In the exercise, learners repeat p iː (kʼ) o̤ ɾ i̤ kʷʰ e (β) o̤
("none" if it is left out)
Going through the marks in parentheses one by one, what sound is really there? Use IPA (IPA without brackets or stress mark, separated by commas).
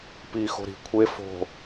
x, f